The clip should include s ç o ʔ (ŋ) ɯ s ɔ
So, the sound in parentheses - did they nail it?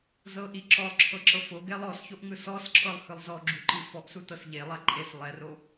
yes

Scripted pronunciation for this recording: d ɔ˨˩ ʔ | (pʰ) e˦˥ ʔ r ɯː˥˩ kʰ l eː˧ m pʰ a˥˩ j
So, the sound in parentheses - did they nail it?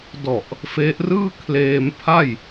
no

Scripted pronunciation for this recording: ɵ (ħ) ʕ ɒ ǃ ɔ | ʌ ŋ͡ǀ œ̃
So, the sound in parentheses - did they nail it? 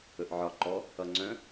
no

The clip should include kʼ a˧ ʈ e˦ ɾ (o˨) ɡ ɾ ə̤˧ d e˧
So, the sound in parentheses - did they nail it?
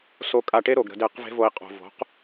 yes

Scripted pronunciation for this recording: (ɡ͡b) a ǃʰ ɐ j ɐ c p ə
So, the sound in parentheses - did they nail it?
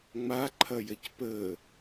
no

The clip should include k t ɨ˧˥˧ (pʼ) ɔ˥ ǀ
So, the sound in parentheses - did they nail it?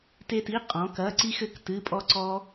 yes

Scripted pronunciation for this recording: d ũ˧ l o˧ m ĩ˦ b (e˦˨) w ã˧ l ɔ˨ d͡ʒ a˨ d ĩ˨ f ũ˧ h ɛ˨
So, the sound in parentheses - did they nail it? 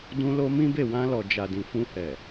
yes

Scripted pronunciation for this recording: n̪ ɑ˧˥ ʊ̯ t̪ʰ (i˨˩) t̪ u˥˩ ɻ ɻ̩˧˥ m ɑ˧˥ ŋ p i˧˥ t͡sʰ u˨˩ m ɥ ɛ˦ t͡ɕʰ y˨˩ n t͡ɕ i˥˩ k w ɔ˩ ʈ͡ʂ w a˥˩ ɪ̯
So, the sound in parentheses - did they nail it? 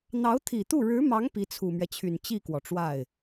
yes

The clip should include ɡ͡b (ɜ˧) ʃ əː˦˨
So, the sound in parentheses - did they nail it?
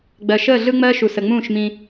no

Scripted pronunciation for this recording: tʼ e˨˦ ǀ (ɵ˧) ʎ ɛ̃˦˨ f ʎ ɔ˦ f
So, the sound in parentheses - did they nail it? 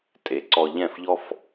no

